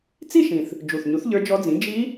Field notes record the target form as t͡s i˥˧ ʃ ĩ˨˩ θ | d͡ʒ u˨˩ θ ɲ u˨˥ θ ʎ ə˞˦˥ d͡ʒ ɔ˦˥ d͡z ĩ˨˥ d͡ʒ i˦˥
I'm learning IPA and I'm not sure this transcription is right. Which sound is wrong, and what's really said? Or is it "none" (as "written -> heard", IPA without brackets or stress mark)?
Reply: none